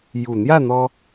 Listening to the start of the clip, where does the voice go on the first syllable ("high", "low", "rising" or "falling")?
low